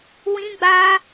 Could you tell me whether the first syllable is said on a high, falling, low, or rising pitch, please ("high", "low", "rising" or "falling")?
high